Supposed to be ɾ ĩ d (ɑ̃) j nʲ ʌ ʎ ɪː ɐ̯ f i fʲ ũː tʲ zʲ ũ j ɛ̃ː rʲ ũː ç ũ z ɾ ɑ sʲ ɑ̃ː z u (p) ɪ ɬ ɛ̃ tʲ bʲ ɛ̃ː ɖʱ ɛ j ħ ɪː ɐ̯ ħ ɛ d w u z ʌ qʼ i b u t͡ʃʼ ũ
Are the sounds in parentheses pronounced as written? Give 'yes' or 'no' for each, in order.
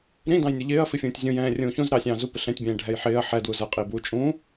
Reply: yes, yes

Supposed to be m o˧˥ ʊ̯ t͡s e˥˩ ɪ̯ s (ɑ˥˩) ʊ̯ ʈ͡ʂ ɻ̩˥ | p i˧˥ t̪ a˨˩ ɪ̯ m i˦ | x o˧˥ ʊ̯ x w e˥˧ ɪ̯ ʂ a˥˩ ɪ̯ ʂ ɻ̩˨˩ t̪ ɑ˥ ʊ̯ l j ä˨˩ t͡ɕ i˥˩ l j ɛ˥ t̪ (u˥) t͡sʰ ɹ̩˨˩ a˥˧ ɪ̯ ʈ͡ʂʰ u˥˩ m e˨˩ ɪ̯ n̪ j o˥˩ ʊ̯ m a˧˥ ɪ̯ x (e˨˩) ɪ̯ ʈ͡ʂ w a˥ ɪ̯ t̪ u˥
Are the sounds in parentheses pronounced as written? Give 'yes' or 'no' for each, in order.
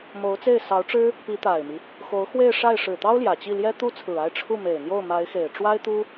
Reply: no, yes, yes

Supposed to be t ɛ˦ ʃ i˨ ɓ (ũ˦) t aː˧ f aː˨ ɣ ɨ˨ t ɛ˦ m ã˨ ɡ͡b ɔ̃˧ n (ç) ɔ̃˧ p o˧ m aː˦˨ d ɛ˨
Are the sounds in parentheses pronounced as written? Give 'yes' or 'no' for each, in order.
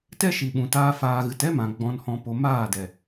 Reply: no, no

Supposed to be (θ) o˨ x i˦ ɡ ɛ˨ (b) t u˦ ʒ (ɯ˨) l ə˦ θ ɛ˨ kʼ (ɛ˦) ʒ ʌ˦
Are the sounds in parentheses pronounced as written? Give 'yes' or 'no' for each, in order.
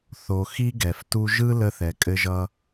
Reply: yes, no, no, no

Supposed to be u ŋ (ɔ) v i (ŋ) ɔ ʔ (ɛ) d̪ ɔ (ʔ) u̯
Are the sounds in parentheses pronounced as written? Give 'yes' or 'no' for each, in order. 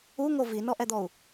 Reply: no, no, yes, no

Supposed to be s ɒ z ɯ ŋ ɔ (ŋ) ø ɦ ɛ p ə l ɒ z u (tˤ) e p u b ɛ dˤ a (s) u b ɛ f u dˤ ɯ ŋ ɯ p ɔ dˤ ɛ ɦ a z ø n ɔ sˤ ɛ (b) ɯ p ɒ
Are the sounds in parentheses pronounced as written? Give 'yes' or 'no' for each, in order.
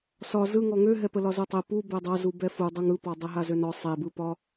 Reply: yes, yes, no, yes

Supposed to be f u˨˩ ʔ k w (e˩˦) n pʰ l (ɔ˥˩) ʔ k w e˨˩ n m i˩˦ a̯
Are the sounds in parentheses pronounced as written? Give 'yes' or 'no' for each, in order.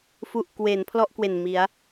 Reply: yes, yes

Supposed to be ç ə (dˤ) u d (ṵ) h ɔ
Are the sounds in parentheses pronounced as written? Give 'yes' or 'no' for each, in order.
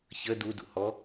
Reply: no, yes

